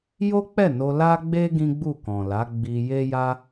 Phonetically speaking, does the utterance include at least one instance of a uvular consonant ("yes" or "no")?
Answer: no